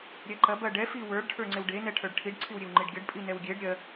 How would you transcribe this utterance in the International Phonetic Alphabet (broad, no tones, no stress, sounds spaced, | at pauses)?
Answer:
ɾʲ ɛ ǃ ɐ b ɐ ɖ ɛ f i w ə˞ ɖ ʈʰ ə˞ ŋ͡ǀ e w ɖ e n ɛ ʈʰ ə˞ ɖ ʈʰ i ɖ ǀʰ i w ɾʲ e w ŋ͡ǃ i ɖ ɡʲ ɐ ɖ pʼ i n ɛ w ɡʲ e ɖ ɾʲ ɜ